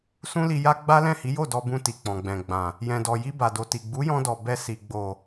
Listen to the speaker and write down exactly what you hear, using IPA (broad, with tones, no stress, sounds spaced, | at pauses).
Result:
s ũ˦ l i˧ j a˦ ɡ͡b a˦ l ɛ̃˦˨ h i˨˦ j o˦˨ d ɔ˧ b ũ˧ t i˨ k͡p ɔ̃˨ ɡ͡b ɛ̃˨ ɡ͡b ã˨ | j ɛ̃˨ d ɔ˨ j i˧ b a˨ d o˨ t i˨ ɡ͡b u˨˦ j ɔ̃˧ d ɔ˨ b ɛ˧ s i˨ ɡ͡b o˨